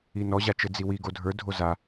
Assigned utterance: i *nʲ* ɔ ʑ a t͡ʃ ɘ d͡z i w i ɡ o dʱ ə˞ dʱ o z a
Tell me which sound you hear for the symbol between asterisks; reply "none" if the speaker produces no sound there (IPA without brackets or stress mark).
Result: n